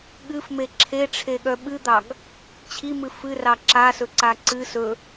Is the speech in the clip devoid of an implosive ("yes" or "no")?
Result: no